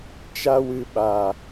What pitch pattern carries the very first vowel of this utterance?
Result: high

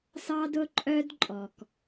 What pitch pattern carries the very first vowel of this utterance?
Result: high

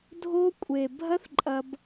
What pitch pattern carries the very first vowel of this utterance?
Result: high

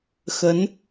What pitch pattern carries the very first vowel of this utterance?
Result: rising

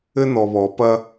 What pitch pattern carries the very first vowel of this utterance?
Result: high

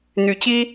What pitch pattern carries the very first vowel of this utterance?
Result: low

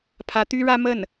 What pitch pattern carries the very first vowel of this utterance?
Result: rising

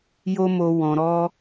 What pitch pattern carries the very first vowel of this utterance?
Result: high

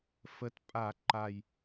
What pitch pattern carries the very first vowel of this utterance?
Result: rising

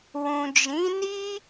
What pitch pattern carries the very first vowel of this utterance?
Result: low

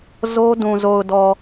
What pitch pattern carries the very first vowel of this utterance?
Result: high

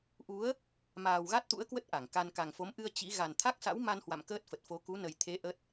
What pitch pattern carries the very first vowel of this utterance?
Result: rising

